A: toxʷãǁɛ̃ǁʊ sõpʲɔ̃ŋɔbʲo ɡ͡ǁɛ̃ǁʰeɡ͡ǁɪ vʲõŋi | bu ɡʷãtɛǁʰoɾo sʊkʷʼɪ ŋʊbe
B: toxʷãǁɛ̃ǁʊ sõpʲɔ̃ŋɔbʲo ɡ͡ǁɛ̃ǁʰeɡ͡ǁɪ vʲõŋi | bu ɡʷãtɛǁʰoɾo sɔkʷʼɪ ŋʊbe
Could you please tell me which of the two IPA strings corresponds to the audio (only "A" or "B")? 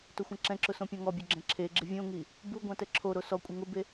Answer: B